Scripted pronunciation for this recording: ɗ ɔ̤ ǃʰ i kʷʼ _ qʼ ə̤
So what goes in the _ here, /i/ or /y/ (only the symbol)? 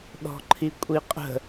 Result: i